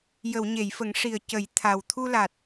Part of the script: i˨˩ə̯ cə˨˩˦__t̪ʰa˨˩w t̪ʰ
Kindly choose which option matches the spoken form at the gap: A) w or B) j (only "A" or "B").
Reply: B